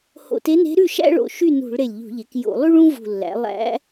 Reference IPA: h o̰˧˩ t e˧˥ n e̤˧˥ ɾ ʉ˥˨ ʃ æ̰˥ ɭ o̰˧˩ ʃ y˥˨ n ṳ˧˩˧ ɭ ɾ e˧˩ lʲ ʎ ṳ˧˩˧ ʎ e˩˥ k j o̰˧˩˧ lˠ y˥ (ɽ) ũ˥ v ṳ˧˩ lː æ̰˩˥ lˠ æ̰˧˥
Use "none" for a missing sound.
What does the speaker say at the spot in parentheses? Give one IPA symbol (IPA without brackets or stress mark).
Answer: ɭ